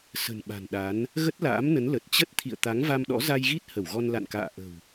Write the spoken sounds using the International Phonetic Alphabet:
s ə̤˨˩ n ɓ a̤˨˩ n ɗ a˨˦ n | ɣ ə˦˥ t̚ l a̰ː˧˥ m n ə˨˦ n l ə˨˩ t̚ t͡ɕ ə˦˥ t̚ t̪ʰ ḭ˧˨ ə̯ t̪ a˨˦ ŋ v a˧ m ɗ ɔ̰˧˥ z a˧ j ɣ i˦˥ t̚ h ə˧˩ w ɣ ɔ˧ n l a̰˧˨ n k a̰ː˧˨ ʔ ə̤˨˩ w

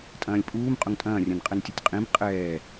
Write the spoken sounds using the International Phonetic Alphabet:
tʼ ɐ̃ː lʲ pʼ uː m qʼ ʊ ŋ tʼ ɐ̃ː rʲ ɐ̃ n qʼ ɛ n tʲ ʊ tʲ qʼ ĩ b qʼ ɛː

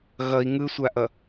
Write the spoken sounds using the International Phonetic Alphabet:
ɣ ʌ i̯ ŋ ɯ sʷ a ʔ ʌ

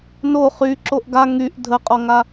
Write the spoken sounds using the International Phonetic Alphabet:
n o χ y ǁ o ʔ ɡ a ŋ y ʔ dʱ ə qʼ ɔ ŋ a

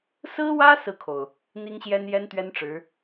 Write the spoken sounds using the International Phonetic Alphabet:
s ɹ̩˥ w ä˥ s ɹ̩˥˩ kʰ o˩ ʊ̯ | n̪ i˥ ŋ ɕ j ɛ˥ n j ɛ˥ n t̪ ɥ ɛ˥ n ʈ͡ʂ ɻ̩˧˥

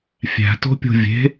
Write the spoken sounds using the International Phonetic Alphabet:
fʲ æ̤ t o̤ pʲ o̤ vʲ e̤

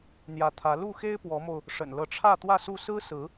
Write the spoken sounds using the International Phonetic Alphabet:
n̪ j ä˧˥ t̪ʰ ä˧˥ l u˥˩ x e˥ ɪ̯ p w ɔ˧˥ m o˧ ʊ̯ | ʂ ə̰˨˩ n l ɤ˧˥ ʈ͡ʂʰ ä˥˧ t̪ w ä˥˧ s u˥˩ s ɹ̩˥ s ɹ̩˧˥

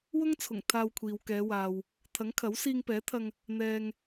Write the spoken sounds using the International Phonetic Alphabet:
w ʊ˥ ŋ t͡sʰ ʊ˨˩ ŋ t̪ʰ aː˧ w kʷʰ iː˨ w k ɛː˨˧ w aː˨ w | t̪ʰ ɐ˨˥ ŋ kʰ ɐ˨˥ w s iː˧ ŋ p ɛː˨˥ t̪ʰ ɐ˧ ŋ | n̪ ɛː˨ ŋ

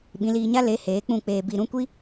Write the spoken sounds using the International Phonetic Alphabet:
ɓ ĩ˨˦ l iː˧ ɲ a˦ l e˨˦ h eː˨˦ k͡p ũ˦˨ k͡p eː˧ b i˧ ɾ ũ˦ kʷ i˦

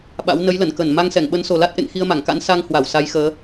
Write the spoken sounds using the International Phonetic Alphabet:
ɓ a̰˧˥ w n ə˨˦ j l ə˧˩ n k ə˧˩ n m a˧ ŋ s ɛ˧˩ ŋ ɓ ə˨˦ n s o˨˩ l a˦˥ t̚ ʔ ḛ˧˨ ŋ x i˧ ə̯ m a˧˩ ŋ k a̰˧˥ n s a˧ ŋ h w a˧˩ w s a˨˦ j x əː˨˦

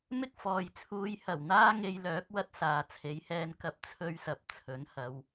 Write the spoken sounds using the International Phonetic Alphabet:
m ɪ˥ k̚ f ɔː˨ j t͡sʰ uː˧ j h ɐ˨˩ w n̪ aː˥ ŋ e˧ j l œː˨˥ k̚ w ɐ˥ t̚ s aː˨ t͡sʰ e˨˥ j h ɛː˧ n k ɐ˧ p̚ t͡sʰ ɵ˧ ɥ s ɐ˨ p̚ t͡sʰ ɵ˨˥ n h ɐ˨˧ w

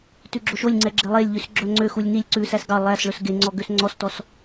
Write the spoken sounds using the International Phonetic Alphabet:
t ʉ ɡ͡ǁ o ʃ o lʲ ŋ͡ǀ ɛ ɡ͡ǁ e lˠ e lʲ ʎ ʉ s ɡ͡ǁ œ ŋ͡ǀ ø x u lʲ n i lʲ ǀ ʉ s æ s ɡ ɑ lˠ æ s ɭ ɵ s ɡ e ŋ͡ǀ ɔ ɡ ø s ŋ͡ǀ ɔ s t ɔ s

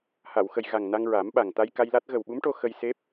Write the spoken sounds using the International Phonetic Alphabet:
h a˨˩˨ w x ə˨˩ j ɣ a˨˩ ŋ n a˧ ŋ ɹ a˨˩˦ m ɓ a˨˩ ŋ t̪ a˧ j k a˧ j l a˦˥ t̚ ɣ ə˨˩ w ɓ u˧˥ m ʈ o˧ x ə˧ j s e˦˥ p̚

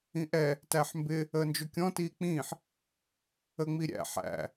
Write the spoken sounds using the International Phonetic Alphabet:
ĩ ʔ ɛ | t æ ħ m b ɪ | əː n d͡ʒ ʊ kʲ ɔ̃ t iː k͡p ĩː ħ | ə ŋ͡m i ɾʲ æ̰ ħ æ̰

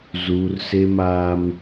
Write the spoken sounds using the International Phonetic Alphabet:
z uː˦ r s e˦ m aː˦ m

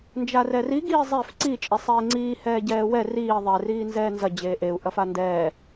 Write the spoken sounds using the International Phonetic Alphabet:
n d͡ʒ a r ɛ r i ɡ iː zˤ e f ǀ i t͡ʃʼ e sˤ eː ŋ͡ǀ iː h ɛː ɟ ɛː w ɛ r iː ðˤ ɛ r iː n z ɛː n z ɐ d͡ʑ eː ʔ e u̯ ʔ ɐ f a n d ɛː

